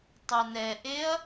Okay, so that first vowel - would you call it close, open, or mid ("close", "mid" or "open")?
mid